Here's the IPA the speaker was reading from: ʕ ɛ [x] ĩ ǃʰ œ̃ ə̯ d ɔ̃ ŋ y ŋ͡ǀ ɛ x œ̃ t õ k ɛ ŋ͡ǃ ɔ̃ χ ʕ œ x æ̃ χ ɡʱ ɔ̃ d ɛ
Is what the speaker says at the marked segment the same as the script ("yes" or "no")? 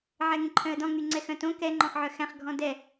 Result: no